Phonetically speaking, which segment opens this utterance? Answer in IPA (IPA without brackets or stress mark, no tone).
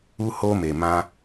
u